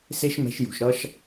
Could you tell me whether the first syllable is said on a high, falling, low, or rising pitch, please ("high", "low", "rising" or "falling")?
high